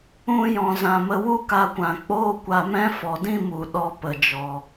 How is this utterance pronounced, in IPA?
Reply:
ũ˦ j ɔ̃˧ z ã˨ m ə˧ w u˦ k a˧ kʷ ã˨ k͡p oː˦ kʷ a˧ m ɛ̃˦ f ɔ˨ d ĩ˦ m u˨ ɗ ɔ˧ p ə˨ d͡ʒ ɔ˨

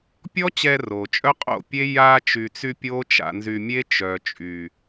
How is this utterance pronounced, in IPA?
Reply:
pʲ ɔ˦ t͡ɕ ɛ˧ r o˨ t͡ʃʼ œ˦ qʼ o̰˦˨ pʲ e˦ j a˧ t͡ʃ y˨ t͡s y˧ pʲ o˦ t͡ʃ a̰˧ n z y˧ mʲ e˦ t͡ʃ œ˨ t͡ʃʼ y˨

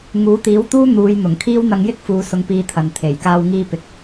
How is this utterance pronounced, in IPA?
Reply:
ŋ uː˨˥ t̪ iː˨˥ w t̪ uː˥ n̪ uː˨˧ j n̪ ʊ˨˩ ŋ kʰ iː˥ w n̪ ɐ˧ ŋ j ɪ˥ k̚ f uː˨˧ s ʊ˧ ŋ p iː˧ t̪ʰ ɐ˨ n t̪ʰ e˨˩ j k aː˧ w ŋ iː˧ p ɪ˨˥ k̚

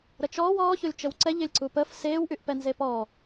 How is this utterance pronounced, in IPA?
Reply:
ɾ ə t͡ʃ ɔː w ɔː ç o lʲ t͡ʃ ə w ǀ ɛ ʎ e lʲ ǀ u p ə f s eː w ʔ y ʔ p ɛ n z e p ɔ

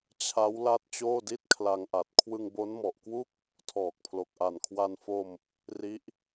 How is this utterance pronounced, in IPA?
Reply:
t͡ɕʰ a˦˥ w l a˦˥ t̚ t͡ɕ oː˥˩ d i˥˩ t̚ kʰ l a˧ ŋ ʔ a˨˩ t̚ kʰ w ɯ˧ ŋ b o˦˥ n m ɔ˨˩ ʔ k w u˥˩ k̚ | tʰ ɔː˨˩ k̚ pʰ l o˨˩ k̚ ʔ a˨˩ n kʰ w a˧ n f o˧ m | r i˦˥ ʔ

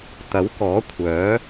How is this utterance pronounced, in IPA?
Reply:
t̪ ɐ˨˥ w k ɔː˨˥ kʷʰ œː˨˥

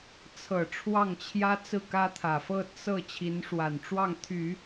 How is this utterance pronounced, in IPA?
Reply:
t͡sʰ ɤ˨˩ ʈ͡ʂʰ w ɑ˥˩ ŋ t͡ɕʰ j ä˥ t͡s ɹ̩˥˩ k ä˥ t̪ʰ ä˨˩ f ɤ˥˧ t͡s ɤ˥˩ t͡ɕʰ i˧˥ n ʂ w a˨˩ n ʈ͡ʂ w ɑ˥˩ ŋ t̪ʰ y˨˩˦

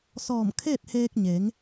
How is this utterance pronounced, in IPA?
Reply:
s ɔː˧˩ m kʰ eː˥˨ t̚ h eː˧ k̚ ɲ eː˩˧ ŋ

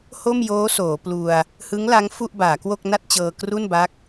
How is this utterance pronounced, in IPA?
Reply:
h o˥˩ m j oː˦˥ s oː˩˦ p l u˧ a̯ | h ɯ˦˥ ŋ l a˦˥ ŋ f u˥˩ ʔ b aː˩˦ k w o˥˩ k̚ n a˥˩ t̚ t͡ɕ ɤː˧ k r u˥˩ n b a˦˥ k̚

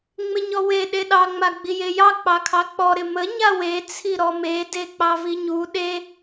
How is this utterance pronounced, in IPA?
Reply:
ŋ͡m ɪ ɲ ɔ w e ɗ e ɗ ɑ ŋ͡m a ɡ͡b i j e j ɑ k͡p ɑ kʰ ɑ k͡p ɔ ɾ ɪ m ə ɲ a w e t͡sʰ i ɾ ɔ m e d e k͡p ɑ v i ɲ u ɗ e

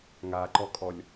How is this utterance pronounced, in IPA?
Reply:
ŋ a ǃ ɔ kʼ ɔ lʲ

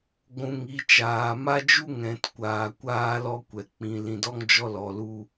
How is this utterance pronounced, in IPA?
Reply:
ɡʷ ũ˧ ŋ i˨˦ t͡ʃ aː˨ m a˦ d͡ʒ u˦ ŋ ɛ̃˨ t kʷ aː˨ kʷ aː˦ l ɔ˦ kʷ ɛ˨ k͡p ĩ˧ l ĩ˧ d ɔ˦ ŋ d͡ʒ ɔ˦ l ɔ˧ l u˦

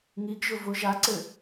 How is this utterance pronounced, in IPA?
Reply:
ŋ i ɡ ʒ ʊ v ʊ ʒ a ǀ ɘ

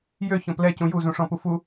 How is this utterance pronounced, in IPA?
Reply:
j ø ç ɔ̃ p l ɛ c ũ j u z ũ ʂ ɔ̃ p u f u

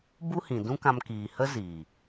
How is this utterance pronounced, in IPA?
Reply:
b u˦ h ĩ˨ d ũ˦ k ã˧ m k iː˨ h ə˦ z iː˨

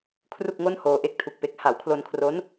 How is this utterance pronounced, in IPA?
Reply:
kʰ r u˥˩ k̚ ŋ o˥˩ n h oː˧ ʔ e˥˩ k̚ tʰ u˨˩ k̚ p e˦˥ k̚ h a˩˦ w kʰ l o˧ n kʰ r o˦˥ n

